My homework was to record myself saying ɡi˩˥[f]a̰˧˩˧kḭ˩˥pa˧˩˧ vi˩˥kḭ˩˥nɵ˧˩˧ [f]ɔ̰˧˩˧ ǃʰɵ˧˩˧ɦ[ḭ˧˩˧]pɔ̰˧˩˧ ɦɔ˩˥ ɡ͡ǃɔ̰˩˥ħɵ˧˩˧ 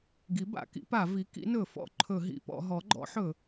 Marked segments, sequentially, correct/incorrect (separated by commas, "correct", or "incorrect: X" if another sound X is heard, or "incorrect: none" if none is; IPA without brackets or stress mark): incorrect: b, correct, correct